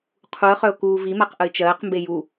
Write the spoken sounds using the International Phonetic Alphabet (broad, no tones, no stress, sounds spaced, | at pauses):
qʰ u ə̯ χ œ ʊ̯ k uː v i m a q ʔ ə ɪ̯ t͡ʃ ɜː q m b e j u